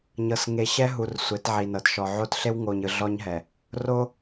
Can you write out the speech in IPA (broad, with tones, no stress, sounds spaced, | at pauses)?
ɲ ɤ˨ s ŋ e˨ ɕ ɛ˦ ɦ u˨ r sʷ e˨˦ t ʕ i˨ n ɤ˨ t ʃ ɔ˨ ʕ o˦ t ɬ e˦ w ŋ o˨ ɲ ɯ˨ ɮ ɔ˦ ɲ ɦ ɛ˨ | r o˦